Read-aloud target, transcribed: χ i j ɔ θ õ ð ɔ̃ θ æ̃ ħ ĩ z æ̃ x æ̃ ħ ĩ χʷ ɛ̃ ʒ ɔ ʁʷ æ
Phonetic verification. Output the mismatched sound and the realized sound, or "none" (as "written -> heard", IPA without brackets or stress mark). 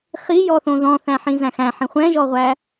none